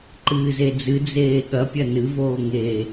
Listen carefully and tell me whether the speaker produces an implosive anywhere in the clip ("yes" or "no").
yes